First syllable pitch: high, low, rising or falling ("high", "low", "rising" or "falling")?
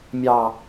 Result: low